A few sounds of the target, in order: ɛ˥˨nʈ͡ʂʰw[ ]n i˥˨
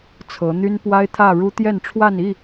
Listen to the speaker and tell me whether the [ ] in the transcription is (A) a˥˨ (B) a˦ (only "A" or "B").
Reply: A